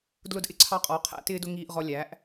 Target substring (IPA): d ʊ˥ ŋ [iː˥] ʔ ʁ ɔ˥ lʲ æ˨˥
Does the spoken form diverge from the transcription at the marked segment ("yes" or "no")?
no